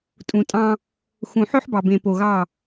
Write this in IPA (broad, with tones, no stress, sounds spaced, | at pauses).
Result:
tʼ ũ˨ tʼ ɑ̃˦ | x ũ˨ ħ ø˦ ħ b ɑ˨ b ẽ˨ p o˨ ɣ ɑ˦˨